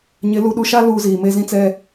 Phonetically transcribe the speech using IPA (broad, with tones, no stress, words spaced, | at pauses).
ɲɪ˨˦ lu˨ɗu˨ʃa˦ luː˦ziː˨ meː˦zĩ˦t͡sɛ˦